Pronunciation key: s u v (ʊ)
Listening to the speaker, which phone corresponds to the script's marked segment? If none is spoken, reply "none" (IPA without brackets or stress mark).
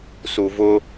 ʊ